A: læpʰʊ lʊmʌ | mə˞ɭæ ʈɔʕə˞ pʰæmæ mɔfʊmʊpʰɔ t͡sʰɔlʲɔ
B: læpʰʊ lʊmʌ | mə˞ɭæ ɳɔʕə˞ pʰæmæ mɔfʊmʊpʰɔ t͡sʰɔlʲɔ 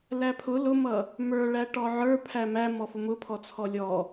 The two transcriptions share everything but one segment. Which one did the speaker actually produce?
A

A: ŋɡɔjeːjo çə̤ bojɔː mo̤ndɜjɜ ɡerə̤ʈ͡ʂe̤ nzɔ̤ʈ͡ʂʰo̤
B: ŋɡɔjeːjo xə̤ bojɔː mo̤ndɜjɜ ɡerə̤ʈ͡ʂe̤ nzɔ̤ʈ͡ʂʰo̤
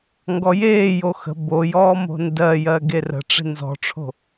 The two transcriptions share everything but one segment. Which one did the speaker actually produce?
B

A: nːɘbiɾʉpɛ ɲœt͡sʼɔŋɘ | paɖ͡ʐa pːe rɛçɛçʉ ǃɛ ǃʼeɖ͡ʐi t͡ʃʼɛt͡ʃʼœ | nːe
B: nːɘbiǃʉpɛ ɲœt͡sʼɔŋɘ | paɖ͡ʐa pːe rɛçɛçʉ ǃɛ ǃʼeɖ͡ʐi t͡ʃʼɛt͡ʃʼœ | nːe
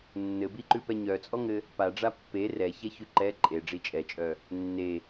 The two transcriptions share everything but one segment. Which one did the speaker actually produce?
B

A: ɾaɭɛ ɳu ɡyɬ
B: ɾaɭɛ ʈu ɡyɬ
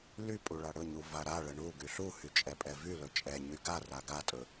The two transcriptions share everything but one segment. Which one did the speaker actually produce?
A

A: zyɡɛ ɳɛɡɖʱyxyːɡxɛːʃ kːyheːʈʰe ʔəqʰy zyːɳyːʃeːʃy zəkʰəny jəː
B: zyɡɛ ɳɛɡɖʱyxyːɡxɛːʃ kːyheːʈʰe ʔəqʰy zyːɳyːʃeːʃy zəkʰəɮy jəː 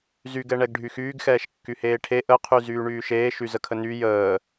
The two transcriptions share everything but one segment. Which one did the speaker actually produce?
A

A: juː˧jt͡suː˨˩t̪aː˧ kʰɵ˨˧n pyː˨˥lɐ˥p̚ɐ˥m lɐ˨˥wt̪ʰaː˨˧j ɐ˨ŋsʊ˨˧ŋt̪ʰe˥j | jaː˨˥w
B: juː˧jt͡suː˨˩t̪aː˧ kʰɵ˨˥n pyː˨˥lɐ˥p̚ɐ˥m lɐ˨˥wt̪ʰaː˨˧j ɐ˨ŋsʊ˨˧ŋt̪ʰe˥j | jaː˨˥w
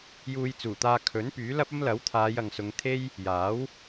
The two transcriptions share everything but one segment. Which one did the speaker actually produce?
B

